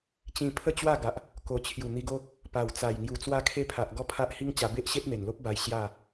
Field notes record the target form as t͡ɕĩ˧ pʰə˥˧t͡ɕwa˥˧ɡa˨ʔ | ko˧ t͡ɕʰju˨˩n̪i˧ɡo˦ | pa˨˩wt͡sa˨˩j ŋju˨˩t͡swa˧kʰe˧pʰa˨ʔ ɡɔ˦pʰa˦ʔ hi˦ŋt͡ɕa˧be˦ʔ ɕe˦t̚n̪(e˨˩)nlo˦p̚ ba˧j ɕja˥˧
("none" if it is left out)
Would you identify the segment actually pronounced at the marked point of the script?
e˨˩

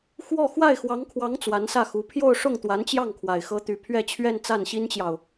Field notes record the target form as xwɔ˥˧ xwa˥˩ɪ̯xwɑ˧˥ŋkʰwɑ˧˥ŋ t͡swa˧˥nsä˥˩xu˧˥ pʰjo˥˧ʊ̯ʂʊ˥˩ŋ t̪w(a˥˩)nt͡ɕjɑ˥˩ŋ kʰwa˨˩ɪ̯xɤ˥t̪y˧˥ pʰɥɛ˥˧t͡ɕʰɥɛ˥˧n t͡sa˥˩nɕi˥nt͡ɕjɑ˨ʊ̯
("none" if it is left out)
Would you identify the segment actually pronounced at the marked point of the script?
a˧˥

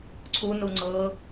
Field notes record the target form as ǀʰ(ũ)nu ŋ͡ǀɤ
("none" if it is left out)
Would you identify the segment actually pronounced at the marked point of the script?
u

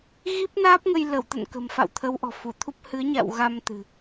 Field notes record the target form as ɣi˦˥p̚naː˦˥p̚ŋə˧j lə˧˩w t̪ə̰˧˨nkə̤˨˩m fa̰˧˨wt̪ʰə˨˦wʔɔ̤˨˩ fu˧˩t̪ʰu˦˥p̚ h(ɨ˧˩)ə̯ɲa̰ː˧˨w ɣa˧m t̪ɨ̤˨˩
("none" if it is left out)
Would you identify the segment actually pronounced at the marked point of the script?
ɨ˨˦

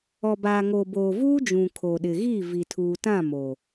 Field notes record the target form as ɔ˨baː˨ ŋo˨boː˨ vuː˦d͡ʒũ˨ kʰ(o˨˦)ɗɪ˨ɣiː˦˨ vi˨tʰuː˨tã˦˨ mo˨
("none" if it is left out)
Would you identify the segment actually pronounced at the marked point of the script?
o˨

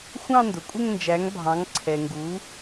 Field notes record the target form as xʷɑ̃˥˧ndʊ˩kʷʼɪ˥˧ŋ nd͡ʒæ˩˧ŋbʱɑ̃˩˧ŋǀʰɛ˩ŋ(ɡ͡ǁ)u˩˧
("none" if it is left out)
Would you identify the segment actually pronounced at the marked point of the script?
ɡ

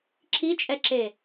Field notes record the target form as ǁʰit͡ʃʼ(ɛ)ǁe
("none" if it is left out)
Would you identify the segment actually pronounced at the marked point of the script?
ɛ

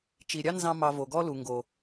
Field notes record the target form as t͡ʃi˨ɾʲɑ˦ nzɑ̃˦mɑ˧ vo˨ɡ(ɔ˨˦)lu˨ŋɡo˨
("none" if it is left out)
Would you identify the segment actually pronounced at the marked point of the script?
ɔ˦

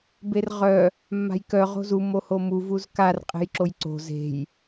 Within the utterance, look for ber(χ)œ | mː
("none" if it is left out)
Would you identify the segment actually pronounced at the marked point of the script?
ʁ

